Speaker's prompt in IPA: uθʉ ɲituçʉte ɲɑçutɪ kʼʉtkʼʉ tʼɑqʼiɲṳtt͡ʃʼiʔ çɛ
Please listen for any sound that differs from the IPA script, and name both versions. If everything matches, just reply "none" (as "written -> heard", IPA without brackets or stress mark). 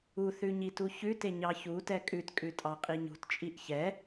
ɪ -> ɛ